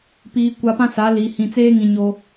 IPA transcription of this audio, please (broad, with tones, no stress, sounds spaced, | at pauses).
p iː˨ kʷ a˨ p ã˦ s a˨˦ l i˨ h ĩ˨ t͡s eː˦ ŋ ĩ˨ ɲ o˦